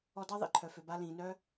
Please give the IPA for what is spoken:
ɔ˧dɑ˥ ðˤḭ˩ǃʰœ˩fø˩ba˧ lĩː˩nœ˥

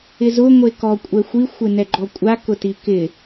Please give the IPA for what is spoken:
ɪzʊ ŋʷekɔ kʷʼɛxʷi xʷɪnɛɡ͡ǃɔkʷʼa kʊtikɪ

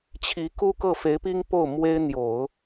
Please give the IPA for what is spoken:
t͡ɕʰi˧˥ku˥kɤ˥˩ fe˧˥ɪ̯pi˥ŋ po˥˩ʊ̯mwe˥ɪ̯n̪jo˨˩˦ʊ̯

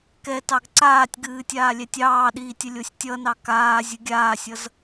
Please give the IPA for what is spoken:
kɛ tɑɡǀaːtʲɡɨː tʲaːlʲɛtʲɑːɗiːtʲ əlʲosʲtʲʌnɑ kaː zʲɨɡʲaːsʲʌz

